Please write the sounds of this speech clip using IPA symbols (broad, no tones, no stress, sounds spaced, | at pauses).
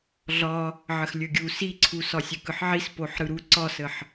ɮ ɒ | ʕ ə x lʲ ɵ ɡʲ u s i ǀʰ u s ɒ sʲ ɵ k ɯ ħ ʕ i s p o ħ ɾ ɯ ɾ u ǀ ɒ s ə ħ